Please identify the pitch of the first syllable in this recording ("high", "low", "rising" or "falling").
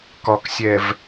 low